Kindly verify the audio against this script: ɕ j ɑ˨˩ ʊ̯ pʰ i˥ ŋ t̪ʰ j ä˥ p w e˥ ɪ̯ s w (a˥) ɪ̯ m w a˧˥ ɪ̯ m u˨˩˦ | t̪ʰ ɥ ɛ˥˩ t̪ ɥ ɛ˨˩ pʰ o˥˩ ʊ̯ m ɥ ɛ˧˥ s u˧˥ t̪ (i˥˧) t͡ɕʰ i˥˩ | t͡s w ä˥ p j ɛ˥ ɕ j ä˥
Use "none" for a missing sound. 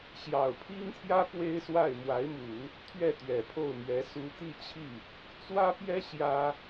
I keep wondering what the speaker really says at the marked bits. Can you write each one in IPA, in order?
a˥˩, i˥˧

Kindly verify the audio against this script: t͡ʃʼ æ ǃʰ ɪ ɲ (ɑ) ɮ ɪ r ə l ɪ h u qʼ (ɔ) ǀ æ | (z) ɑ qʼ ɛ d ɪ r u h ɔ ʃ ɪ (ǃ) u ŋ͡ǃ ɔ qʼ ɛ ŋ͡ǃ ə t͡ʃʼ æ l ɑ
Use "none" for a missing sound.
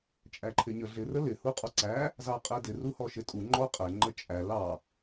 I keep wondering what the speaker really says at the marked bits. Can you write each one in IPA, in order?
ə, ɔ, z, tʼ

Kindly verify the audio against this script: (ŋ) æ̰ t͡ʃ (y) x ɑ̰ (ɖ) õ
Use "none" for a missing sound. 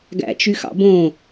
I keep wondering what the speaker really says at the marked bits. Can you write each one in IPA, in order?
ɡ, y, b

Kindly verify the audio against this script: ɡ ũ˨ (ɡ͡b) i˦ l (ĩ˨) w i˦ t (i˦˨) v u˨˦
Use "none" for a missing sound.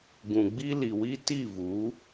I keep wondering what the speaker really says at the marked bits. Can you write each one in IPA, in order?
ɡ͡b, i˨, i˦˨

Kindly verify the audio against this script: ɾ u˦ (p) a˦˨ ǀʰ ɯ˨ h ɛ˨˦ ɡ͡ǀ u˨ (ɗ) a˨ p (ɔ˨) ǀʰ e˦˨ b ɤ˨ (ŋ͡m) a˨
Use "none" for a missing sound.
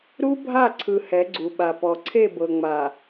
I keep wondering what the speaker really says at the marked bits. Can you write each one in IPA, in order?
bʱ, ɓ, ɔ˨, ŋ͡m

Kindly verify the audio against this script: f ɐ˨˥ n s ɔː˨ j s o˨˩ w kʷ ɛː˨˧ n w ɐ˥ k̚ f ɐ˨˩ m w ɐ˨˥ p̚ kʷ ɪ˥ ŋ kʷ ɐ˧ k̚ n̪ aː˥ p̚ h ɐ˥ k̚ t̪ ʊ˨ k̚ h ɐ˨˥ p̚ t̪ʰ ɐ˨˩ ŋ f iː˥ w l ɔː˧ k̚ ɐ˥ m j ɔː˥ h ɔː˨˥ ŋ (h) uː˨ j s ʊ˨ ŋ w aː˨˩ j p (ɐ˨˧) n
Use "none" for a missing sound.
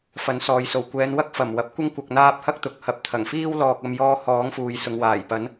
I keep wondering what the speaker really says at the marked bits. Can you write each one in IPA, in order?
f, ɐ˨˥

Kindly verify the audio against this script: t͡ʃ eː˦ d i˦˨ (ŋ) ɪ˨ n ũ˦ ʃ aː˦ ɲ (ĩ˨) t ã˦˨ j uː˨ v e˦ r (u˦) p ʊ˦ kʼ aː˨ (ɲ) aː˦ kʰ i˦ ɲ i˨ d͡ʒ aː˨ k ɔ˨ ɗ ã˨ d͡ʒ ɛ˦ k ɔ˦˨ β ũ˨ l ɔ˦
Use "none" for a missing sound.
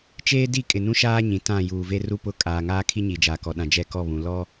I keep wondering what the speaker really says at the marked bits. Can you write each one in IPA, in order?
kʼ, ĩ˨, u˦, ŋ

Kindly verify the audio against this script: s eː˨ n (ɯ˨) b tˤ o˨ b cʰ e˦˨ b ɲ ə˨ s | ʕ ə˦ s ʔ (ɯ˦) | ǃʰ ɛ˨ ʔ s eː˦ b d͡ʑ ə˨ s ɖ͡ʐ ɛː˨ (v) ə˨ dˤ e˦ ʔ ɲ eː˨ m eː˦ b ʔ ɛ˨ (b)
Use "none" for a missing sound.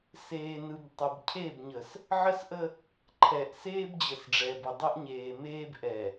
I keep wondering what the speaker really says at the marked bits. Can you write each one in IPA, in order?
ɯ˨, ə˦, b, none

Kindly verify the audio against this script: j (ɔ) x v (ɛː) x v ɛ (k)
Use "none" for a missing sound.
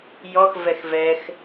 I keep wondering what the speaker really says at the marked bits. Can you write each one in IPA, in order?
ɔ, ɛ, x

